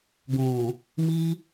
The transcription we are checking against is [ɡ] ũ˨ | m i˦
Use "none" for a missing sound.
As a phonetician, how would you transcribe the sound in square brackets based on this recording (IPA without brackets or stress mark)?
ɡ